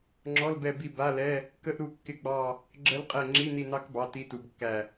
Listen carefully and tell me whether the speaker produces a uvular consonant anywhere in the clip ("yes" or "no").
yes